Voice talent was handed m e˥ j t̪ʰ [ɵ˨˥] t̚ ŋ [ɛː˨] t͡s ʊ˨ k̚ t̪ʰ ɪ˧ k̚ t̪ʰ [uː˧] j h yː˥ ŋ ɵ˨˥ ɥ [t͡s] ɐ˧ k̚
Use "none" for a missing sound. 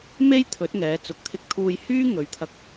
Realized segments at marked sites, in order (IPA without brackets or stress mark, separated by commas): ɵ˨˥, ɛː˨˧, uː˧, t̪ʰ